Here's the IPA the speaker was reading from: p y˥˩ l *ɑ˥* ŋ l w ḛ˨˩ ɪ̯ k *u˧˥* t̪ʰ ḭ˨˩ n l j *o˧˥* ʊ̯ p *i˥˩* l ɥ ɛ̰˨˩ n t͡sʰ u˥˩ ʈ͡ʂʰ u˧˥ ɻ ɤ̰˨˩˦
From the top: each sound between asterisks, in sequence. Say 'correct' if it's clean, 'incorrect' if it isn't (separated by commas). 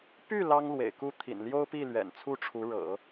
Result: correct, incorrect, incorrect, correct